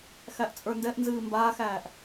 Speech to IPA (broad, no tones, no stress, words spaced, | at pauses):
xæʔt͡sʼə˞ndɛʔnzɨː mbaːxæːʔ